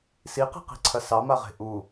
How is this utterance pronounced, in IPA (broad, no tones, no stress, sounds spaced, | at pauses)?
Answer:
s i q i̤ q i̤ ǀʰ ɐ s ɑ m a ʁ e̤ ʔ u